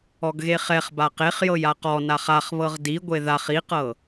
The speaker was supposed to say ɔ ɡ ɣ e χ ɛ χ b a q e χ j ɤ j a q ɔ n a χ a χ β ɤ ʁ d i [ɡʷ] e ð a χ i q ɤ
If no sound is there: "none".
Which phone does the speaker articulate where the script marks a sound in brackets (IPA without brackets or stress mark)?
ɡʷ